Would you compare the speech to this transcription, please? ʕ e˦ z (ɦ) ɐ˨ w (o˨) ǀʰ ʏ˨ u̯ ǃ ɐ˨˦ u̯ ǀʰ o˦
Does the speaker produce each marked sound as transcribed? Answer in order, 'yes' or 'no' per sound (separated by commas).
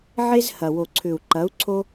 no, yes